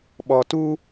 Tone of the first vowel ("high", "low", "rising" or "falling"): low